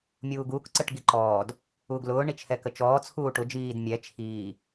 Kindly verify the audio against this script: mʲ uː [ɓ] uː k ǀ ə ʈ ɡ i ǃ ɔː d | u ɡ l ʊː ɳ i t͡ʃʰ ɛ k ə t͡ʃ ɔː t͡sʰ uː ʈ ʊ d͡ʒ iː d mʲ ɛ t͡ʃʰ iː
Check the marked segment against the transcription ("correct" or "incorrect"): incorrect